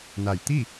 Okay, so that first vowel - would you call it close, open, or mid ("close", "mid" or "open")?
open